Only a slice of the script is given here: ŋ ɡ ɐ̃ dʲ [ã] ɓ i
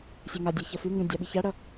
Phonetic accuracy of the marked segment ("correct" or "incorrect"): incorrect